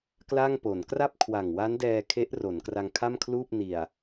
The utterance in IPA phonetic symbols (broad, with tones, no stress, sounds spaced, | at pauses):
k l a˥˩ ŋ p o˩˦ n k r a˥˩ p̚ kʰ w a˨˩ ŋ w a˦˥ n d ɛː˧ kʰ e˦˥ ʔ r o˩˦ n k r a˧ ŋ kʰ a˥˩ m kʰ l uː˥˩ p̚ n i˨˩ a̯